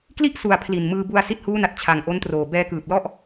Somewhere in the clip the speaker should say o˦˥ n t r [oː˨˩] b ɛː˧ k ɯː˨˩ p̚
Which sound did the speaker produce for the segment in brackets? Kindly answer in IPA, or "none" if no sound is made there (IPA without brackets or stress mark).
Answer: oː˨˩